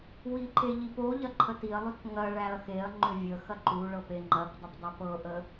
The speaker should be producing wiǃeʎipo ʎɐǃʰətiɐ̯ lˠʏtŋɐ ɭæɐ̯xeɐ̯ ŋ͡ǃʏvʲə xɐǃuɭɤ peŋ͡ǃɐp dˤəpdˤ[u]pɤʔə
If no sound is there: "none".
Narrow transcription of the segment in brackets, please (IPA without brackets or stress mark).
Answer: ʏ